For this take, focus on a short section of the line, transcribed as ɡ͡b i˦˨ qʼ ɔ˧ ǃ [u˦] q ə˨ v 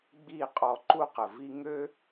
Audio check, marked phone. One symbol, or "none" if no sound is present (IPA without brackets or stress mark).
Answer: u˦